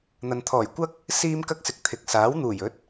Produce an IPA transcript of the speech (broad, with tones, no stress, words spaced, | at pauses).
n̪ɐ˨nt̪ʰɔː˨˩j kʷɐ˥k̚ | siː˥mkɐ˥k̚sɪ˨k̚ t̪ʰɪ˨k̚saː˨˥w n̪uː˨˩jɵ˨˥t̚